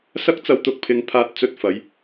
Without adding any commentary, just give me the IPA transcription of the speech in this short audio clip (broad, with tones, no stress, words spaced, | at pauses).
sɐ˥k̚t͡sɐ˧wt̪ʊ˨˥k̚ pʰɪ˧ŋ pʰaː˧t̚t͡sɵ˧t̚fɐ˨˧j